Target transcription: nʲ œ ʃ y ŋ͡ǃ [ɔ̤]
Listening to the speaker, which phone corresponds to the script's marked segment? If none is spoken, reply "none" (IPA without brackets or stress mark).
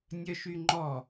ɔ